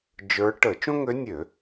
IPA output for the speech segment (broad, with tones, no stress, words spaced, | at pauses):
d͡ʒə˞˧˥ ʈə˧˩˧t͡ʃõ˥ŋø˧˥nʲø˧˩˧